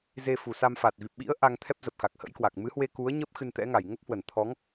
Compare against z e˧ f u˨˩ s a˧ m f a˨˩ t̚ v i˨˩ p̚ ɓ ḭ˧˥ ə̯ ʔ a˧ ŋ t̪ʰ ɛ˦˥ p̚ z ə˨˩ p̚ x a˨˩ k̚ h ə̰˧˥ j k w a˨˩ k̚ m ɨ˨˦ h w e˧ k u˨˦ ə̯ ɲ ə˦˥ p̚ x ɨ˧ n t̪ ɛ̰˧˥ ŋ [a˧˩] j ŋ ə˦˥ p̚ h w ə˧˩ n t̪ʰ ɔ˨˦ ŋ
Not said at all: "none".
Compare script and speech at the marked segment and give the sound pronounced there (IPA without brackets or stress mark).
a˧˩